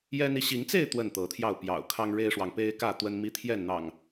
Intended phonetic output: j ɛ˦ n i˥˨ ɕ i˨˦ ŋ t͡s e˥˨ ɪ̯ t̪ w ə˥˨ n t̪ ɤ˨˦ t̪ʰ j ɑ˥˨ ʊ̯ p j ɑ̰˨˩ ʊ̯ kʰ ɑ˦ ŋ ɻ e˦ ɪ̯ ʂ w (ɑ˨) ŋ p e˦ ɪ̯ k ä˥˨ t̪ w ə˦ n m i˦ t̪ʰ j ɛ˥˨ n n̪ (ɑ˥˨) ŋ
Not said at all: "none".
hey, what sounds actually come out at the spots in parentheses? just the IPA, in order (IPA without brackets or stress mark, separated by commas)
ɑ˨, ɑ̰˨˩